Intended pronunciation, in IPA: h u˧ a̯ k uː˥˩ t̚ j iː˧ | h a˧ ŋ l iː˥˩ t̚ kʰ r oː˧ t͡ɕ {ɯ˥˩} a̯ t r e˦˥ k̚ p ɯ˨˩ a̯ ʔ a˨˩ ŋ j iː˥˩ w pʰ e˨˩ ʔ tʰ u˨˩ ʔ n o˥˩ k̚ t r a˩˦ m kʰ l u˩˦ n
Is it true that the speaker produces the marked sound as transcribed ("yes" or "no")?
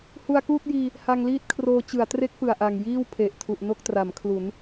no